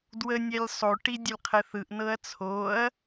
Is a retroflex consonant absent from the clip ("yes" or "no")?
no